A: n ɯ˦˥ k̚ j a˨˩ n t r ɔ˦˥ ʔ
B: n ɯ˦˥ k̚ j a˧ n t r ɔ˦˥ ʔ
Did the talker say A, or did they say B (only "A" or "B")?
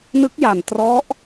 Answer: A